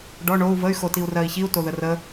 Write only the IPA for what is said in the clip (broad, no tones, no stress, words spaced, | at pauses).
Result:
ɖɔ ɳou̯ vəy̯ xotiu̯rɜi̯çiu̯ toðərə